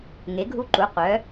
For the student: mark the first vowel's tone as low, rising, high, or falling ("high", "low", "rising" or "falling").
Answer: rising